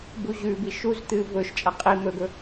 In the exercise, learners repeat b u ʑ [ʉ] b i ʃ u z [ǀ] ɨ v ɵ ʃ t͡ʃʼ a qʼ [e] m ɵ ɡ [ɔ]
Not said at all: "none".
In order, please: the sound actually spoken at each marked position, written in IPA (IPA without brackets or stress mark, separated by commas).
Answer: ʉ, t̪, i, ɵ